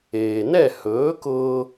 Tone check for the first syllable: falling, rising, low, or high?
low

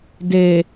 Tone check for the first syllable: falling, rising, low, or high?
low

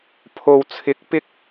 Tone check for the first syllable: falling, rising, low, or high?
low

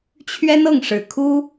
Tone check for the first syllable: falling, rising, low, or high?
high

